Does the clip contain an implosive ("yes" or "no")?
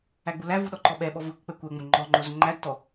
yes